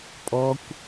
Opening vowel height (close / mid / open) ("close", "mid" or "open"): mid